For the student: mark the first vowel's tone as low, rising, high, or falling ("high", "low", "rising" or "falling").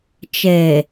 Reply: low